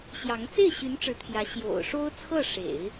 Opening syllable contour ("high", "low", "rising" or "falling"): rising